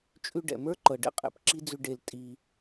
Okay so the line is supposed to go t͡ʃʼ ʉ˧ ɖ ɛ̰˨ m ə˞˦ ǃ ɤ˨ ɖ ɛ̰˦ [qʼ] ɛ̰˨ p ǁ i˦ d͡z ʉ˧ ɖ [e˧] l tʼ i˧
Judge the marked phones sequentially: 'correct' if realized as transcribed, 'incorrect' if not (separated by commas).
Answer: correct, correct